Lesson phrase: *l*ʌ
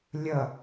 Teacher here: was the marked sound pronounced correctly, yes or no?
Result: no